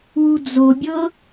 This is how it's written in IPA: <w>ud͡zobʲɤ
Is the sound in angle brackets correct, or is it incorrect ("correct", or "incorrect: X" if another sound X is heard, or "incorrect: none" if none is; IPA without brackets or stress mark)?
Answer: correct